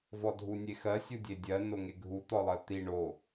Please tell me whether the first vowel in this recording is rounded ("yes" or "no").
yes